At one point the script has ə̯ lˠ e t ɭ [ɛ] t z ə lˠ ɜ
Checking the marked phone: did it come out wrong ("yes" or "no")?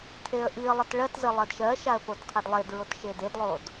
yes